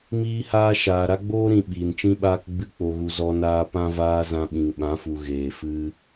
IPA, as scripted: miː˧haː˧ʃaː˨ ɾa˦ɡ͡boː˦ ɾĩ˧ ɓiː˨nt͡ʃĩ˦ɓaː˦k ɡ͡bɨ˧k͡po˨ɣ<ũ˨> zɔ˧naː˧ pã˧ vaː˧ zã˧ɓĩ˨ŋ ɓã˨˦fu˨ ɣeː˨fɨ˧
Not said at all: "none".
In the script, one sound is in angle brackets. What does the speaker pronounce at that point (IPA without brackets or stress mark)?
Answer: u˨